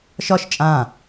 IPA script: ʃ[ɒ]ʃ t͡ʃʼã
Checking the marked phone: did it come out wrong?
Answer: no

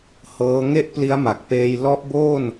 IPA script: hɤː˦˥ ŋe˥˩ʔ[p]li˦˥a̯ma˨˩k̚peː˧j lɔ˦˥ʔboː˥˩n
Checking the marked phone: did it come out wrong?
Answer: no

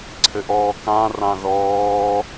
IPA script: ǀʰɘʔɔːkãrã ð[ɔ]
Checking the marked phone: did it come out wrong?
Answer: yes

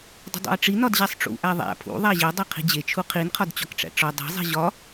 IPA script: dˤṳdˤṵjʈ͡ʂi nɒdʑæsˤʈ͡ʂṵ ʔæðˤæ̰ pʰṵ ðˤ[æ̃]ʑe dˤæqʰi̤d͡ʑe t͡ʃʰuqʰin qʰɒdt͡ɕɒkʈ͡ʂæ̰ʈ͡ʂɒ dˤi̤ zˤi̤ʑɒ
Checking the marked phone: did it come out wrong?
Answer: yes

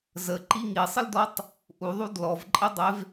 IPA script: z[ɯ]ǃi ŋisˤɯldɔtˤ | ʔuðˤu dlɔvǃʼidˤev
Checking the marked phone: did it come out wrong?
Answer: yes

